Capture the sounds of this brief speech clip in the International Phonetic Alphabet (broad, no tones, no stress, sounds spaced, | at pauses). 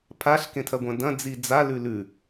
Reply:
pʰ a ɬ k ẽ tʰ ɐ ɡʷ ɐ̃ d ɐ̃ d͡z i d͡z a l ʉ l ʉ